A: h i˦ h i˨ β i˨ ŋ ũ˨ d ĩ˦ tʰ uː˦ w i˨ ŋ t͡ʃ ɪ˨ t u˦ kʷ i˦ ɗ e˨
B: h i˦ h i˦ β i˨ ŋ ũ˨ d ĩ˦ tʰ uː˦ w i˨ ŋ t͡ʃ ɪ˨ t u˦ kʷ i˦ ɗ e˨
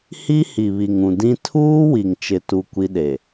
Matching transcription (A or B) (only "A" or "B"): A